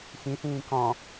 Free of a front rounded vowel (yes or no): yes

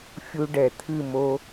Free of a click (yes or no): yes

